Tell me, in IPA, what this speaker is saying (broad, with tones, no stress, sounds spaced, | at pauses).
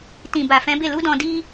t ĩ˨ b a˨ f ɛ̃˨˦ b e˦˨ l u˨˦ d ɔ̃˧ d i˦